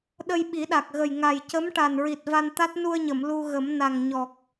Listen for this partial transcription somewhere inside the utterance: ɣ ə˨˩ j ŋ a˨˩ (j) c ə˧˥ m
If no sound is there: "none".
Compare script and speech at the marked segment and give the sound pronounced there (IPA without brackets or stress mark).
j